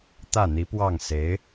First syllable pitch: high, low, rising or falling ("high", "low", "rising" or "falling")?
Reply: falling